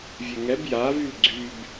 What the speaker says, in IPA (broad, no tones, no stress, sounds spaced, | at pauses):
vʲ e ŋ ɛ b j a v y l ɡ͡ǀ y b